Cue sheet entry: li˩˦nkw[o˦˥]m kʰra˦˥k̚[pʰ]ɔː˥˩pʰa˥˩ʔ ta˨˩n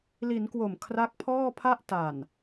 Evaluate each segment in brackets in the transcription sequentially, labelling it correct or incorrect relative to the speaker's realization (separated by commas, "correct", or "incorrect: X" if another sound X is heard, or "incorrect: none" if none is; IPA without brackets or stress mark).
incorrect: o˨˩, correct